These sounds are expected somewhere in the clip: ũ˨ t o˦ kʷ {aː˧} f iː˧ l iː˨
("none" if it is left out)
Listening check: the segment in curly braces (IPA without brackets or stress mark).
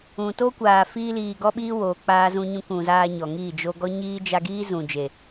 aː˨